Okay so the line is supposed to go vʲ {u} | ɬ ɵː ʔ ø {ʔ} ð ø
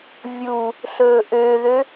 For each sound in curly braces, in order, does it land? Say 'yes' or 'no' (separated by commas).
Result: yes, no